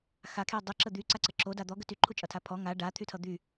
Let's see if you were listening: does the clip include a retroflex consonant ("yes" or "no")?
yes